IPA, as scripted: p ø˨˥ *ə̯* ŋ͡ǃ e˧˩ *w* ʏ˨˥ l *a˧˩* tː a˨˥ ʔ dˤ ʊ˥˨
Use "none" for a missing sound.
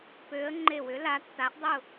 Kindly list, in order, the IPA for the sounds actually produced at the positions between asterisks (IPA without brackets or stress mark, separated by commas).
ə̯, w, a˨˥